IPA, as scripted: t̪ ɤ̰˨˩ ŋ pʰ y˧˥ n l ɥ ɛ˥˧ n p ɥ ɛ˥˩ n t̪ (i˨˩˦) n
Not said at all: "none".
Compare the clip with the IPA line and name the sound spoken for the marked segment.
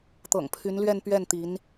i˧˥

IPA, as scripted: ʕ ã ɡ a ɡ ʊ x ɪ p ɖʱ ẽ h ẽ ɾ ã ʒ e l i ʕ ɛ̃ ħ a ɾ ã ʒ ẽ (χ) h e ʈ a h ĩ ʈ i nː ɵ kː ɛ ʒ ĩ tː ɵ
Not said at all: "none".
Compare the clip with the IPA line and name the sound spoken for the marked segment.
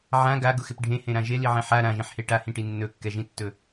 ħ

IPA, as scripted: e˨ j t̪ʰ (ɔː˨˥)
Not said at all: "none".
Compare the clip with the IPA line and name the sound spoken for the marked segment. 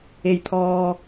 ɔː˨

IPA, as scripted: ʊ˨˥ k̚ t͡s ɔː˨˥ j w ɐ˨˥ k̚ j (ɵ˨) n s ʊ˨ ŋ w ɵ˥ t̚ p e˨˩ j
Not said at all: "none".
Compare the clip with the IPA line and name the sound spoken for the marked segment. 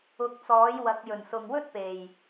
ɵ˨˩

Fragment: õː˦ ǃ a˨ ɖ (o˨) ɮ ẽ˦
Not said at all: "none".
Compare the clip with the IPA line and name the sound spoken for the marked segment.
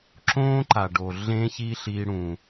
o˨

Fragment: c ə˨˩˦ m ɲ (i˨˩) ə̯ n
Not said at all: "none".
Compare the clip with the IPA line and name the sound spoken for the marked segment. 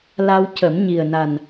i˨˩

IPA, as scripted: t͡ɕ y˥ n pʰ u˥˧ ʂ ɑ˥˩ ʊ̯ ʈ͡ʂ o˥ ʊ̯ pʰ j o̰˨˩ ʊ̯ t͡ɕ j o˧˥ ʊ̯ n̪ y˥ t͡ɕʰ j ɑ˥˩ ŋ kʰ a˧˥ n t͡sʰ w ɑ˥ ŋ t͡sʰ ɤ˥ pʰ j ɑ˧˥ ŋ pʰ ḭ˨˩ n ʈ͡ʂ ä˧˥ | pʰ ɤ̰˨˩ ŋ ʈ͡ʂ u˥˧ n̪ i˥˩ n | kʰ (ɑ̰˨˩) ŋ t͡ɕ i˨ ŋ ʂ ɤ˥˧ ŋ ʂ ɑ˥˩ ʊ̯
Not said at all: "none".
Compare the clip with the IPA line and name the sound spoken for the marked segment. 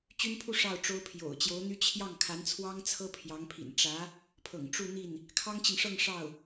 ɑ˥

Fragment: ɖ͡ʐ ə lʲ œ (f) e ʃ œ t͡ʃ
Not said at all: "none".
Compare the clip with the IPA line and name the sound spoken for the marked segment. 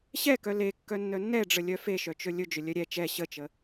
f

